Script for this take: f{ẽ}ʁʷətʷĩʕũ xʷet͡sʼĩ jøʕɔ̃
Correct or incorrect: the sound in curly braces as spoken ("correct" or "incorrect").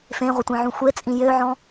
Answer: correct